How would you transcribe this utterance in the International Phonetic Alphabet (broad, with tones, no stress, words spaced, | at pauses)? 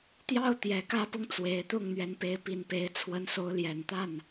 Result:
t̪jɑ˥˨ʊ̯t̪jɛ˨˩ kä˥˨pʊ˦ŋ t͡swe˨˦ɪ̯t̪ʊ˥˨ŋ n̪ɥɛ˨˦npe˨˦ɪ̯pi˨˩n pe˨˦ɪ̯ t͡sʰwə˨˦nso˨˦ʊ̯ljɛ˨˩n t̪a˥˨n